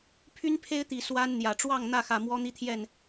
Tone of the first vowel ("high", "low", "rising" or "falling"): high